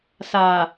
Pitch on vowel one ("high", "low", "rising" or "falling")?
low